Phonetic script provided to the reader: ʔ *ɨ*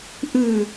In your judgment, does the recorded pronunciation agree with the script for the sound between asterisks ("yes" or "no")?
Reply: yes